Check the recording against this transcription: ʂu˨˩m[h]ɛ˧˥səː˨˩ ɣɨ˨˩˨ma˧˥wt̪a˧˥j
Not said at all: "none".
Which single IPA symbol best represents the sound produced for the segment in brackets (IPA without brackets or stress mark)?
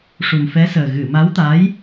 f